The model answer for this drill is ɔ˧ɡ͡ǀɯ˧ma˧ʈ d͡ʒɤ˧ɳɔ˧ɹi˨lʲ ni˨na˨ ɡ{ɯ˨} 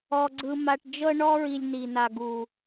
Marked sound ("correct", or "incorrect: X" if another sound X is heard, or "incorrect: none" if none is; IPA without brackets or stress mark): incorrect: u˨